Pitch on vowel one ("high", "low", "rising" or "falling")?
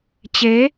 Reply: rising